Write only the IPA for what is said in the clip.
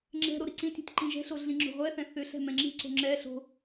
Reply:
ŋ͡ǁ ɛ̤ ɾ o ɾ i ǀ ĩ tʲ ɛ̤ tʲ ǃ ĩ ʒ ɛ̤ ɬ o ɮ ĩ ŋ͡ǁ o̤ ʁʷ ɛ θ ɛ̃ θ ʏ ɬ ɛ̤ m ɛ̃ ŋ͡ǁ i̤ ǀ o̤ ŋ͡ǁ ɛ ɬ o̤

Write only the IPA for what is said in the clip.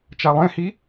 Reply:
t͡ʃ a lˠ ẽ h i

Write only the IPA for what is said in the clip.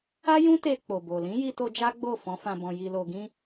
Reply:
a˦ j ũ˦ t e˧ k͡p o˨ b o˨ l ĩ˨˦ j i˧ t o˧ d͡ʒ a˦ ɡ͡b o˦˨ f ɔ̃˨˦ f ã˧ b ɔ̃˧ j i˧ l o˧ ɡ ĩ˦

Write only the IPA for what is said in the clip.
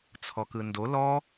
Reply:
t͡sʰ ɔ k ɯ n d o l ɔ

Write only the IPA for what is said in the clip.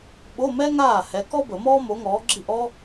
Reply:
ɓ o˧˥˧ m ɛ˥ ŋ aː˥˩ h ɛ˨˥ k ɔ˥ b ə˨˩˦ m ɔː˥ m o˨˥ ŋ ɔː˨˥ ɡ͡ǁ i˥˩ ʔ ɔ˥

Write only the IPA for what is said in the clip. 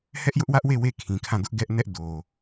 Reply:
h ɛ˦ ʔ j ʊ˦ ʔ w ä˦ ʔ w e˦˨ w e˦˨ kʰ ĩ˨ kʰ ã˦˨ d ʊ˦ ʔ ɡ ɛ˦ ʔ n ɛ˦ ʔ d o˨

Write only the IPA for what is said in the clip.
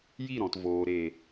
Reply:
j i˦˨ ɾ ɔ̃˨ t v oː˨ ɾ e˨

